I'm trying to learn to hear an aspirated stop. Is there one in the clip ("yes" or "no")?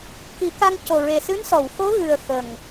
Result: no